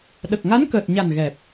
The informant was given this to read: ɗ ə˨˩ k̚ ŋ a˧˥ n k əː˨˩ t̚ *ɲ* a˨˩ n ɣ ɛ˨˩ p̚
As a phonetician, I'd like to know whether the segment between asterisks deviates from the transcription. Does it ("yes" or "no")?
no